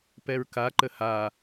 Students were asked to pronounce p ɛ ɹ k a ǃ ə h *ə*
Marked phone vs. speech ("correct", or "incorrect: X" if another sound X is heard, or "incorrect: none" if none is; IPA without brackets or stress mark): incorrect: a